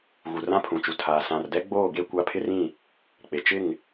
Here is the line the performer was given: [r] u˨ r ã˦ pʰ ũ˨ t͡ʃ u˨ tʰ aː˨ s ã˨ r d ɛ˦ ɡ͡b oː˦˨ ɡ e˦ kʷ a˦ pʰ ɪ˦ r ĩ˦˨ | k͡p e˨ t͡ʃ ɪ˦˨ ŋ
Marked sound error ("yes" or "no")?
yes